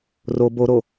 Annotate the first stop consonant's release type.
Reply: plain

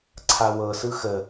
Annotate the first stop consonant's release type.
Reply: click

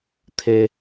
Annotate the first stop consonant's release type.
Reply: aspirated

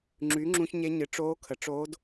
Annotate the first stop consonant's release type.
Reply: click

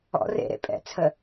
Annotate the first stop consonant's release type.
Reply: ejective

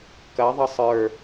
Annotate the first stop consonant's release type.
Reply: plain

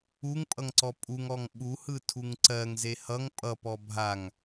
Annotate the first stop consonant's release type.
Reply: ejective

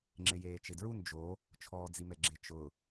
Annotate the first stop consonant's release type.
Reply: click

